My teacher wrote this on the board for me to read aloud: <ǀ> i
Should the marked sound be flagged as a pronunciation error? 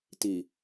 yes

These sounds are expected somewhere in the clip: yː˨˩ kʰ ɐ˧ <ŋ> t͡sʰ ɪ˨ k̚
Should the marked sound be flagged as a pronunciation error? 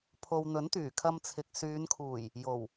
yes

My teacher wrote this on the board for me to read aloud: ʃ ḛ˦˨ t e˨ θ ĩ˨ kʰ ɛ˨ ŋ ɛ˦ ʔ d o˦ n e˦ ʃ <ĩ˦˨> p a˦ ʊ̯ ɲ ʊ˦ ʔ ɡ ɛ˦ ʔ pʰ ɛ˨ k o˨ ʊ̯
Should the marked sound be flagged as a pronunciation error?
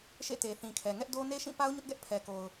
no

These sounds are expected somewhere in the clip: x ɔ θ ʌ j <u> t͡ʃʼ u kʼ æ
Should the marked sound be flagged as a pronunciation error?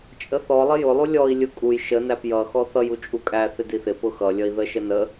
no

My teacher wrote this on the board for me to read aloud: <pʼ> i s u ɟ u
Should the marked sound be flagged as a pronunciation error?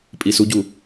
no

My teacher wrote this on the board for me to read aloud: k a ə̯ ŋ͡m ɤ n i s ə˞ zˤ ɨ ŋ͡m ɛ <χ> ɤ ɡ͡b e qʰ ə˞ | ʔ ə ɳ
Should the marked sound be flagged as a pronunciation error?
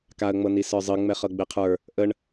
no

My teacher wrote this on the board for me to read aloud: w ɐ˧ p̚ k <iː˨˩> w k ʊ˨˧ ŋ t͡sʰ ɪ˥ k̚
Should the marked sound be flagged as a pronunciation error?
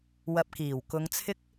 no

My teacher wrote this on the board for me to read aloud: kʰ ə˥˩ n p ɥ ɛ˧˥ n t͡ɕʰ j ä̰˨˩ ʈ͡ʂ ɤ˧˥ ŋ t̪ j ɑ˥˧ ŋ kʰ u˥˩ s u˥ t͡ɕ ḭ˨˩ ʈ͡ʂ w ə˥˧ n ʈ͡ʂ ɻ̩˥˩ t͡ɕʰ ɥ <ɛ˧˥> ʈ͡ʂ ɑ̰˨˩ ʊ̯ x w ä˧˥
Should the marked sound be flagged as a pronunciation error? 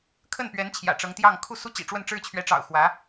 no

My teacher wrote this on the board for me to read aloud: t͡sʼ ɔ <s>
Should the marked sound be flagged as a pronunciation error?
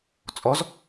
yes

